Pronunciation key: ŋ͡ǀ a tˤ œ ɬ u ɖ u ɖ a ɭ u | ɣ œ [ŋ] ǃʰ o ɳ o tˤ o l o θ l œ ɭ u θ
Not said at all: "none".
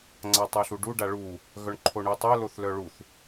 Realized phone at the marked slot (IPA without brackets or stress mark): ɳ